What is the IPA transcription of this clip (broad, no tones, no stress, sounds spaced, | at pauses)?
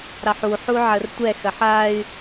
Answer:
ɾ ɑ ħ u ħ u ʕ ə r tʷ ɛ x ɐ ħ a y̯